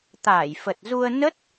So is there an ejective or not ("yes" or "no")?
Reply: no